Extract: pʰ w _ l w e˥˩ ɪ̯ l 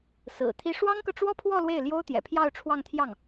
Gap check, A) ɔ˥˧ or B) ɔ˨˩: A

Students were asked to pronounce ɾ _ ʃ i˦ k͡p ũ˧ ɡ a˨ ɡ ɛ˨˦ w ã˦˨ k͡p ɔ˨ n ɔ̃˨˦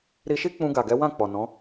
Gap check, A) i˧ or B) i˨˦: A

